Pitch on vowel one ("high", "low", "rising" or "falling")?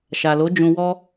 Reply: low